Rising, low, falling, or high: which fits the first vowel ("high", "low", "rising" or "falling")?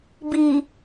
low